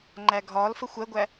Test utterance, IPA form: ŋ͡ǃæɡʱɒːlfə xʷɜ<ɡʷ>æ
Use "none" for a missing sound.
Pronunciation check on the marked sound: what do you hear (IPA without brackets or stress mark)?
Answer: ɡʷ